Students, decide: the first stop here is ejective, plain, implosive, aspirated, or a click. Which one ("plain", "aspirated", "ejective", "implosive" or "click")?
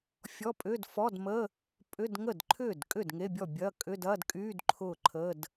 ejective